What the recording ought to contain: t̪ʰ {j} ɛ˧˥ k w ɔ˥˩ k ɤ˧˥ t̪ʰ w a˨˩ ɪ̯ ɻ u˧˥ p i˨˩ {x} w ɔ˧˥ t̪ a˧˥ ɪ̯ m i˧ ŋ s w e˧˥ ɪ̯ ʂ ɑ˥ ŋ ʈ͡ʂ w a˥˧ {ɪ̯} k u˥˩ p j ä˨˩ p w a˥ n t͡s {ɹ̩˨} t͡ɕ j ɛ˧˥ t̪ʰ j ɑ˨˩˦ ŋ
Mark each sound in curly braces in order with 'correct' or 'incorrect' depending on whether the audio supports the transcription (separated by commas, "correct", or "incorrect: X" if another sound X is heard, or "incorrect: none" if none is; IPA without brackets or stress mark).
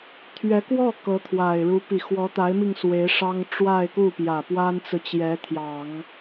incorrect: ɥ, correct, correct, correct